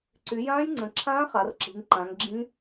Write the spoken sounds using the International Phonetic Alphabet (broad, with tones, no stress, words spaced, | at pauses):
ǀy˩˧ jãː˦˥jŋ͡ǀə̃˩˧ǁʰãː˦˥ χa˩˧rǁi̤˩˧ŋǃã˩˧ŋ ɡ͡ǁĩ˦˥